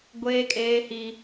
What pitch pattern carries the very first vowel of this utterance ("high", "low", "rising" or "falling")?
high